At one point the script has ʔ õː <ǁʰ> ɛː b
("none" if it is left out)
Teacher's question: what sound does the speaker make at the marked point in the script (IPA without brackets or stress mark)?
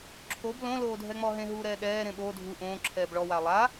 ǁʰ